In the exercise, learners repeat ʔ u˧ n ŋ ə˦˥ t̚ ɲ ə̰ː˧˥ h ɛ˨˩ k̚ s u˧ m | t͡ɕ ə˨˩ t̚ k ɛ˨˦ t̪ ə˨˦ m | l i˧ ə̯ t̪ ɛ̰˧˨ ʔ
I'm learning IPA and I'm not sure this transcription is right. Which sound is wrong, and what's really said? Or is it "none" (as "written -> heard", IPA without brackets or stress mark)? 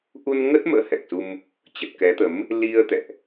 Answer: ɲ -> m